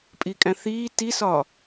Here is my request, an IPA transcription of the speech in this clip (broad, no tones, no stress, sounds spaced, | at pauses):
pʼ i kʼ æ̃ θ iː t i s ɒː